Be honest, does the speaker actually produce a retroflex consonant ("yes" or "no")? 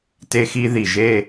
no